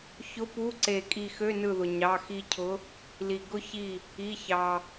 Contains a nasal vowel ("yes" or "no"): no